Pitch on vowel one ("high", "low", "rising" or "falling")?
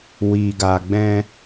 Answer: low